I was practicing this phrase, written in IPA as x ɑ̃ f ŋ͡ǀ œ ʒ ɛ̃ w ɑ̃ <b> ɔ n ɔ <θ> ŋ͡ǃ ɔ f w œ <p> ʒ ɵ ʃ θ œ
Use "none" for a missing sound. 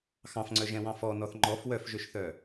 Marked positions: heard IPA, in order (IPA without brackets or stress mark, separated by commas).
f, θ, f